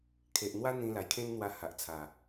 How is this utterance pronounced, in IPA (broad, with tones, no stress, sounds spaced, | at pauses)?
kʰ e˨ ʔ n̪ w a˦ n̪ ĩ˧ l a˨˩ j kʰ ẽ˦ n n̪ w a˧ h a˨ ʔ t͡sʰ a˨˩